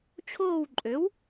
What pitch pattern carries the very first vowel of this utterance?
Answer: falling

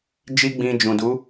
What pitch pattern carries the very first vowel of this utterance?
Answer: high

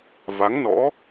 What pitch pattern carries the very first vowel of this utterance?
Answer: rising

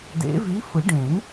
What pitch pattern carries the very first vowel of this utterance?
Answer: rising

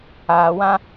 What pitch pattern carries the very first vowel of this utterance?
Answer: low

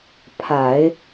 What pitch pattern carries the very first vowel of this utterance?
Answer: low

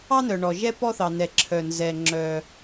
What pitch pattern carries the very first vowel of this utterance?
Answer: high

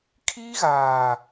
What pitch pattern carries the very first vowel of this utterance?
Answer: high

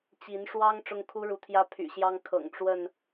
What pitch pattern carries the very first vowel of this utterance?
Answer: rising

